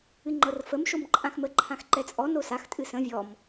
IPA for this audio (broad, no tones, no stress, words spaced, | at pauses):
ɨŋ͡ǃɤrfəm ʃomǃʼãxmə ǃʰãxǃɛt͡sʼɔ nosax tʼɨsə̃ vʲɔm